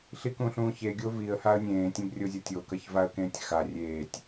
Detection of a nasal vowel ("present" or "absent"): present